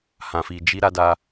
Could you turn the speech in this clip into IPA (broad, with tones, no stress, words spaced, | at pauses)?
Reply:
hã˧fi˧ d͡ʒi˧ ɾa˧da˧